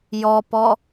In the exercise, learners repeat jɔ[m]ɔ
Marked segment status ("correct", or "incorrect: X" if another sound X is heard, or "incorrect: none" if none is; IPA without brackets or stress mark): incorrect: p